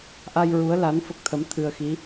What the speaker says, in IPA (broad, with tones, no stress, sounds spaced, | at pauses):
ʔ a˧ j ɹ u˧˥ ə̯ l a˧˥ n f ə˦˥ k̚ t̪ʰ ə˧˥ m t̪ʰ ɨ˧ ə̯ x i˧˥